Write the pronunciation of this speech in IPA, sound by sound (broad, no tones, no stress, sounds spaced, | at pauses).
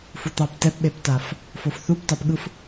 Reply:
f u t̪ ɑ p t ɛ p ɓ e p t a f | f o f θ u p t ɑ p ɠ ɯ f